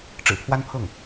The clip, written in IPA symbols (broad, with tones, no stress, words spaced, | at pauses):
ʈ͡ʂɻ̩˨˩pʰwa˥npʰɤ˥˩ŋ